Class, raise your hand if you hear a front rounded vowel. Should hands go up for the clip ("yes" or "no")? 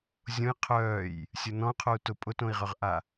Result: yes